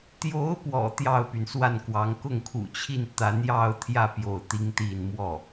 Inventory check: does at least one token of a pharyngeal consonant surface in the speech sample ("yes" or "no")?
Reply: no